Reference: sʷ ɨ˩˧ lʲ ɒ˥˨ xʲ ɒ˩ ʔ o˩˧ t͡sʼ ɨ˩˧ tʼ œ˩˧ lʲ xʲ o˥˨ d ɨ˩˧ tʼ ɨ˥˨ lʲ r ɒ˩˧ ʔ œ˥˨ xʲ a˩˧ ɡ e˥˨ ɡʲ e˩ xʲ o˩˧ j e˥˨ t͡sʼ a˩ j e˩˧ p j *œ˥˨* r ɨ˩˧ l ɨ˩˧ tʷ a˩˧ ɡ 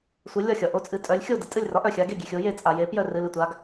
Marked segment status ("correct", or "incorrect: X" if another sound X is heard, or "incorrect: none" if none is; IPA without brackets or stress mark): correct